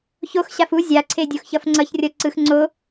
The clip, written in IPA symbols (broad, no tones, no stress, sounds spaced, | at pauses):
ç o x ɕ a f u zʲ a ǀʰ e dʲ o x ç ʌ f ŋ͡ǀ ʌ ç rʲ ʌ ǀ ɯ x ŋ͡ǀ o